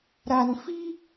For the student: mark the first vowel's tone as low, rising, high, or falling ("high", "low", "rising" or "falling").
low